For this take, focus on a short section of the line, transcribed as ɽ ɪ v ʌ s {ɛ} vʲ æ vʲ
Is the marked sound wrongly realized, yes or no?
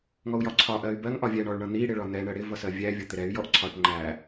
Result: yes